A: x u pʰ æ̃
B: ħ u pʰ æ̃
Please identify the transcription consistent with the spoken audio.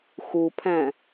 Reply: A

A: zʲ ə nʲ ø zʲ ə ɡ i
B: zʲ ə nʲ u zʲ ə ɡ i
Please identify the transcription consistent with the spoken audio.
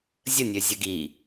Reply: A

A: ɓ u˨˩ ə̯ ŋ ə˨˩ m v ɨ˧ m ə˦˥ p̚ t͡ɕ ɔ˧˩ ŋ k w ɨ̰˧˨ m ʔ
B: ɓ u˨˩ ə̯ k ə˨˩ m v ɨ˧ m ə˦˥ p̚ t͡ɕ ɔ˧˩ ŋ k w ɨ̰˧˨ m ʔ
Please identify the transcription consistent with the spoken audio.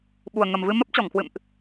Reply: A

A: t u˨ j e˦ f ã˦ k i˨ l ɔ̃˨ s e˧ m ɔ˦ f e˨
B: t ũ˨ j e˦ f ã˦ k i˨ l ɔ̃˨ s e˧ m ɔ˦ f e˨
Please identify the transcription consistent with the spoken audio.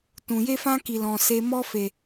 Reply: B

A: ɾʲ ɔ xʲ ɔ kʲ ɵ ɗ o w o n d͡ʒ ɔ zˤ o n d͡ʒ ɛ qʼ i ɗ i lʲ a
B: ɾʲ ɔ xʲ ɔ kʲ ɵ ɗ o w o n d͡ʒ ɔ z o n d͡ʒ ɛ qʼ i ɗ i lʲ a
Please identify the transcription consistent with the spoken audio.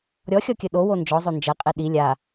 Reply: A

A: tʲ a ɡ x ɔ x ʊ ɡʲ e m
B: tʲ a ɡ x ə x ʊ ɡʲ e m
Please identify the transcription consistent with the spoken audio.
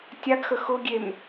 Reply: B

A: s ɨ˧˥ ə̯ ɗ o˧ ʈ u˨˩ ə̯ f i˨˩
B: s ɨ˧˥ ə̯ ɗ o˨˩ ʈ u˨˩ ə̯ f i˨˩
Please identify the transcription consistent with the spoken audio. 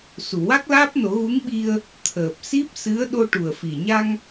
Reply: A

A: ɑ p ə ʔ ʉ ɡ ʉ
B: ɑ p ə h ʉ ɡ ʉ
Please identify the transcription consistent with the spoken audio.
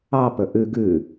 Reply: A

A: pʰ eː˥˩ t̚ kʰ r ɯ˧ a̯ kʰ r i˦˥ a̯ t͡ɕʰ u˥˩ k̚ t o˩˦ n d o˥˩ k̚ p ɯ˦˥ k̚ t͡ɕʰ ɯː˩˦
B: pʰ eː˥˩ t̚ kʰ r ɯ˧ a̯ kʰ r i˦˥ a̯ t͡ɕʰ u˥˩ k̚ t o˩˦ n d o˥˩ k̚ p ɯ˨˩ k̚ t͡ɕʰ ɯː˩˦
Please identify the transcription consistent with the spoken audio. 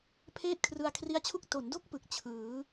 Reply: B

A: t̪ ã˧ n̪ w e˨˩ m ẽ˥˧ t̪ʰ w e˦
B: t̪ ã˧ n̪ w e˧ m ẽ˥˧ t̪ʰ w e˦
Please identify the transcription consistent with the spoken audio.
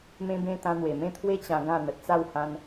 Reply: A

